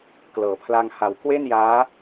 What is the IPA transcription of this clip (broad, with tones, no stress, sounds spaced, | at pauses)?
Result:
k l ɤː˩˦ pʰ l a˧ ŋ h a˨˩ w k w e˥˩ n j aː˦˥